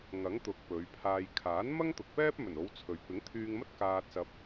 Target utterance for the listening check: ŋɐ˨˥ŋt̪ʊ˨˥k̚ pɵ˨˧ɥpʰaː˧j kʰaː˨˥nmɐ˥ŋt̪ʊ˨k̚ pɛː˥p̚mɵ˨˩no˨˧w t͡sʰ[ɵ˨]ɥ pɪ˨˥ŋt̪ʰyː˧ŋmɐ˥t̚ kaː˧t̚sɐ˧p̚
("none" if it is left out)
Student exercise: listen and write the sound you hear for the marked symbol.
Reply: ɵ˨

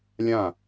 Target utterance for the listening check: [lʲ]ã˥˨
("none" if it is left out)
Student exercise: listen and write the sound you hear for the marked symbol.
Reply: lʲ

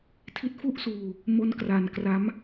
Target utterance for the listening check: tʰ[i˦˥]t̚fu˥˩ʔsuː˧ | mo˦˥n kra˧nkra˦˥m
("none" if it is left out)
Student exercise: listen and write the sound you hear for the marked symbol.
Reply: i˦˥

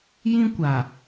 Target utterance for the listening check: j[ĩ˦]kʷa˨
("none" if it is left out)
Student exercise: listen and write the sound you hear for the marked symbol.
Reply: ĩ˦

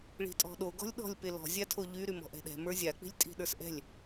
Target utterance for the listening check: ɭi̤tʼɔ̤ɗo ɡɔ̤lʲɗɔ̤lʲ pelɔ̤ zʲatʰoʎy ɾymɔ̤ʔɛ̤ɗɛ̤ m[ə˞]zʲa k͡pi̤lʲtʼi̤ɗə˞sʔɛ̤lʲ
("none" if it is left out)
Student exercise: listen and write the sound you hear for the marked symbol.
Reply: ə˞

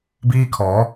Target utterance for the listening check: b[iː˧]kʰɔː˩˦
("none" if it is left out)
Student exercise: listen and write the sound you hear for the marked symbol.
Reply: iː˥˩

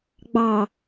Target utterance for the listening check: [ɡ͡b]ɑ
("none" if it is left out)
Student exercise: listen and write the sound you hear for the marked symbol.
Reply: ɡ͡b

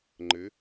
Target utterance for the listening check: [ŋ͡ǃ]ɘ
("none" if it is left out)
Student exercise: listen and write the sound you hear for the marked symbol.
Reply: ŋ͡ǃ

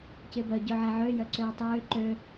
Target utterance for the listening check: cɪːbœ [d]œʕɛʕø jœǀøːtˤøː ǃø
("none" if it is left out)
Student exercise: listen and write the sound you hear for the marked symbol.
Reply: ɟ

